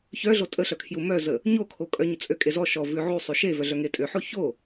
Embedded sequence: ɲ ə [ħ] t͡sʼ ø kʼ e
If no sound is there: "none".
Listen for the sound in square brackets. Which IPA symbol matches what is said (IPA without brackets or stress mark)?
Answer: none